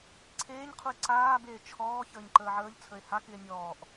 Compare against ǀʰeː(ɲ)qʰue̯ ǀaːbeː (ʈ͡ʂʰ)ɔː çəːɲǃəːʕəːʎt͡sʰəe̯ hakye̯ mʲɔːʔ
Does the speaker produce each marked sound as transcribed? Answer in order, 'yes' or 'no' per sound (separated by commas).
yes, no